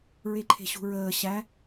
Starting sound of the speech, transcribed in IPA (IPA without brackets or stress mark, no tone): ɹ